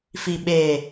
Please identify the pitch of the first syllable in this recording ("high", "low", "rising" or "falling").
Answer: low